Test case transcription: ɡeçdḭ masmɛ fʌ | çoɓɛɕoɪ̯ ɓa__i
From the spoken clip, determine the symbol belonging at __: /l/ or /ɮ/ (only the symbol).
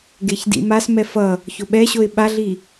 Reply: ɮ